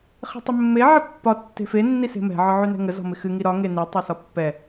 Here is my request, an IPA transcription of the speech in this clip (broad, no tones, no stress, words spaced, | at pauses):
χe̤tˤɪmːe ʕəpːɒ tːe̤fe nːise̤mɛ̤ ʕɒʕynɛ̤ŋə zɔ̤mɪxɨ ŋiɾɒ ŋeni tˤesɒpːɛ